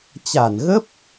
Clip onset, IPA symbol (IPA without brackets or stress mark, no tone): t͡ɕ